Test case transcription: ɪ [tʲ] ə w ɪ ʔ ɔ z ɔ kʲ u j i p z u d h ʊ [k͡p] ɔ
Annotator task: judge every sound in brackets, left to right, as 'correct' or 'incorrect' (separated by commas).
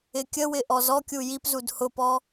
incorrect, incorrect